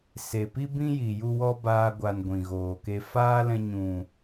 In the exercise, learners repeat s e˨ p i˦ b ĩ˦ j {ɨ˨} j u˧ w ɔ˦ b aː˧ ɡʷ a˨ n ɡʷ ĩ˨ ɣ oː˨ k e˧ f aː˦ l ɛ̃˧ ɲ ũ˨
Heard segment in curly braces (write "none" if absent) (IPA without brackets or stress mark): i˨